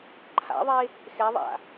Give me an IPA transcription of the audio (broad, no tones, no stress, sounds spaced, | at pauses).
ǃʰ a̰ ðˤ e | x ɛ ðˤ a̰